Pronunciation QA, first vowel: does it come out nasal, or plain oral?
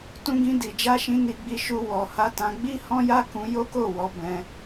nasal